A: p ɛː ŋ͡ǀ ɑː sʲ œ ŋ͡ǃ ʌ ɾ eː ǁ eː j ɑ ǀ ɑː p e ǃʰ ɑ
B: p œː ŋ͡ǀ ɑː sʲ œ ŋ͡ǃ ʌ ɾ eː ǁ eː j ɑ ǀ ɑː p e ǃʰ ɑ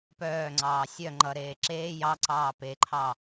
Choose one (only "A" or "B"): B